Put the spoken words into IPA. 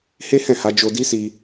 h e˦ h ɛ̃˦˨ h a˧ d͡ʒ o˧ d i˦ s i˧

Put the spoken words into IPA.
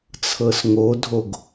t͡sʰ ɤ s ŋ o dʱ o ɡ

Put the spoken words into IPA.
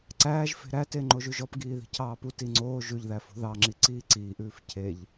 ǀ æː ʒ f e̤ ɾ æ t e ŋ͡ǃ o ʒ ʉ ʒ ɔ p ɡ iː ð i̤ cʰ ɑː p u t i ŋ͡ǀ oː ʒ ʉ ʎ ð æ f o̤ ð ɑ ŋ͡ǁ i ǀ iː ǀ iː ʔ ʉː f cʰ e ʎ

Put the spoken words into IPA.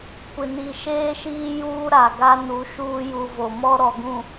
kʷ ɪ˨ n i˨ ʃ eː˦ ʃ iː˦ j uː˦ ɾ a˨ ɡ a˦ n u˨˦ ʃ uː˦ j u˨ v o˨ m ɔ˦ ɾ ɔ˨ ɡ ũ˨

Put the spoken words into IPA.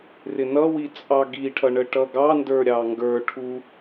r ɪ n ʌ w i t͡sʼ ɑ ɡ i ʈʰ ʌ ɳ ə ʈ ʌ ɡ ɑ n d ə˞ ɾʲ ɑ ŋ ɡ ə˞ ʈʰ u

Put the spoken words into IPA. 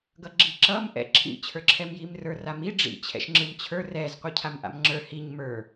ɡ ʌ ɡ͡ǁ i ǁ ʌ m ʔ ɛ̰ ǁʰ ḭ t͡ɕʰ ə˞ ǁʰ ɛ m j i m r ə˞ r a m i ɖ͡ʐ ḭ t͡ɕʰ ɛ̰ ʃ ŋ͡ǁ ɯ m t͡ɕʰ ə˞ r ɛ z qʷ ɯ cʰ a m ʔ a̰ m ŋ͡ǁ ə˞ h i ɲ m ə˞

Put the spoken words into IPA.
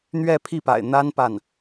n̪ ɥ ɛ˥˧ pʰ i˥˩ p a̰˨˩ ɪ̯ n̪ a˥ n p a˥˩ n

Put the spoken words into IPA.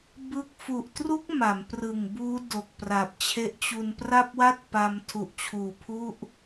b ɯ˥˩ k̚ f u˨˩ ʔ t r u˦˥ k̚ m a˩˦ m p r ɯ˨˩ ŋ b uː˦˥ d o˨˩ k̚ p r a˨˩ p̚ t͡ɕʰ e˦˥ ʔ t͡ɕ u˧ n p r a˥˩ p̚ w a˥˩ t̚ p a˧ m tʰ u˨˩ ʔ t͡ɕʰ uː˨˩ pʰ u˥˩ ʔ

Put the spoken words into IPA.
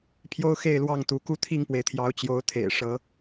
pʰ j o˦ ʊ̯ x e˥˨ ɪ̯ l w ɑ˥˨ ŋ t̪ u˨˦ k u˦ t̪ʰ i˥˨ ŋ p w e˩ ɪ̯ t̪ʰ j ɑ˨˦ ʊ̯ t͡ɕ j o˨˦ ʊ̯ t̪ʰ ḛ˨˩ ɪ̯ ʂ ɤ˨˦

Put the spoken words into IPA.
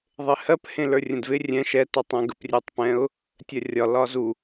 ðˤ ɪ h ɜ p h ẽ l ə˞ rʲ ə̃ d v ɪ rʲ ɛ̃ ʃ ɛ t ə˞ tˤ ɛ̃ ɡ ə p rʲ e tˤ p ɛ̃ ʊ̯ | tʲ ɜ rʲ ɒ l ɒ z u

